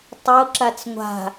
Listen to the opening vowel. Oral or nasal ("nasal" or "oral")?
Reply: oral